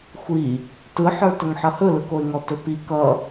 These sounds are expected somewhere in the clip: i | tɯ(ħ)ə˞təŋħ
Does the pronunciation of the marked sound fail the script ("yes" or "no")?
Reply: no